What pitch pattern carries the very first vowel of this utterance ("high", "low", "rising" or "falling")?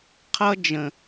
high